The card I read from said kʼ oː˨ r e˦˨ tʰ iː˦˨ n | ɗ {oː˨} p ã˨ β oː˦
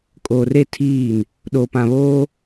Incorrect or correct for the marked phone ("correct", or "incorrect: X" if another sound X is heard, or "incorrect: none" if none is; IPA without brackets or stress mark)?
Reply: correct